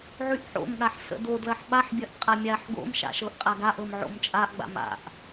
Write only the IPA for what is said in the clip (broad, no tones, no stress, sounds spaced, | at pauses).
ʕ y ʔ ħ o̰ m ɠ a ħ s ə̰ d o d l ɐ ħ ɓ a ħ bʲ ɐ ʔ qʼ a mʲ a ħ ɡ o̰ m ʃ a̰ ʃ ɤ ʔ qʼ a ɡ a ʔ ɤ m ʕ o̰ m t͡ʃʼ a ʔ ɡ͡b a̰ m a̰ ʔ